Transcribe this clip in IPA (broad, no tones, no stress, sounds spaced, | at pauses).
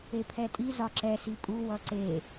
e pʰ ɛ tʼ i z ɒ ǁ ɛ s i pʼ u w ʌ ǀ e